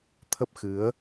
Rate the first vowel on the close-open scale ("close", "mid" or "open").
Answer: mid